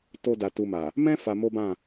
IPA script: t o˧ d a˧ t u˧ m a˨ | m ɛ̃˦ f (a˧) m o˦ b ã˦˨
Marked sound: correct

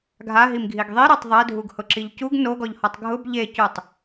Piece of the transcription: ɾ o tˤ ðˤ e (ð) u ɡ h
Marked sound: incorrect: dʱ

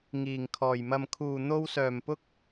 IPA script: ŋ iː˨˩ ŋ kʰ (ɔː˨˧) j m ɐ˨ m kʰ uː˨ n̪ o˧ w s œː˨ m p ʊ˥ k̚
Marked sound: incorrect: ɔː˨˩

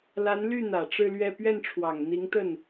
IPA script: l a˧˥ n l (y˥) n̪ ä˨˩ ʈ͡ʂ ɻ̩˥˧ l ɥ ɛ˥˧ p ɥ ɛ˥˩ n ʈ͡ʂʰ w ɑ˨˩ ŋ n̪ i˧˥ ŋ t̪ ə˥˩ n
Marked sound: incorrect: y˥˩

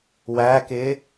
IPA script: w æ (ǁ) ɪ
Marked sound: incorrect: k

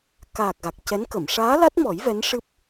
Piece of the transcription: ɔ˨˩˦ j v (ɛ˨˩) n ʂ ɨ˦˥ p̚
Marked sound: incorrect: ɛ˧˥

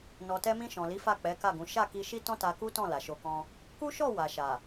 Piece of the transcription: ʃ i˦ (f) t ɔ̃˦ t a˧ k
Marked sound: incorrect: none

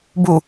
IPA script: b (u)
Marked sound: correct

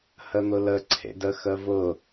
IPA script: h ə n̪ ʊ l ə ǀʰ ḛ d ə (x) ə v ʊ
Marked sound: correct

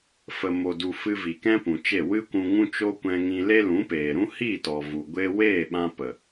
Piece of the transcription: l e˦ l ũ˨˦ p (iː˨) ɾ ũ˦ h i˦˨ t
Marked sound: incorrect: eː˨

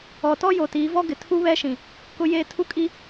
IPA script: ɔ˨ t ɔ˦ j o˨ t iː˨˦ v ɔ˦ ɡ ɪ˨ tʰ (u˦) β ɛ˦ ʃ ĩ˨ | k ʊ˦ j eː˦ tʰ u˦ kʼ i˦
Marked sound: correct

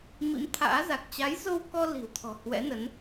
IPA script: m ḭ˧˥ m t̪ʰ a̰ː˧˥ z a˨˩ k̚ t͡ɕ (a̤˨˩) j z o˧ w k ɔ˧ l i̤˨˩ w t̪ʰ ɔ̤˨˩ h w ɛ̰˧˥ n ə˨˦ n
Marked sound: incorrect: a˨˦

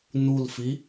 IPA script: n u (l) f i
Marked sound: correct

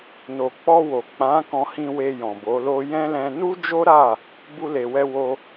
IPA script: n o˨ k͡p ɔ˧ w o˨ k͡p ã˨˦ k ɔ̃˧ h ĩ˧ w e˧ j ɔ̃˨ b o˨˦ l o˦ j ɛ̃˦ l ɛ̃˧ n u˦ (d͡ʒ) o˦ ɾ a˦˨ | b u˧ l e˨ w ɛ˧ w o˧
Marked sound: correct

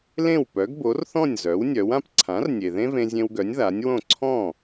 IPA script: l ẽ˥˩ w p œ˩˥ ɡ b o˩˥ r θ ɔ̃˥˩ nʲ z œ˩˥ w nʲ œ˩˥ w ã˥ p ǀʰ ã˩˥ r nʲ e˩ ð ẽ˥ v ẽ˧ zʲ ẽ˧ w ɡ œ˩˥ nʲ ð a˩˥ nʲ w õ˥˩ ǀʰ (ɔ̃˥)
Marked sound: incorrect: ɔ̃˥˩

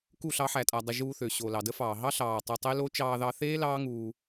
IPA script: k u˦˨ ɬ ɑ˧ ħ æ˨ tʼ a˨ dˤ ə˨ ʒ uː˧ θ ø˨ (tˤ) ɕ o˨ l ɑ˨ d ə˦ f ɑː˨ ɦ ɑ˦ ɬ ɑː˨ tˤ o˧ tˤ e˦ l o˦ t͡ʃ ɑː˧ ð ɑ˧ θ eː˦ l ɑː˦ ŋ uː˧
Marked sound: incorrect: none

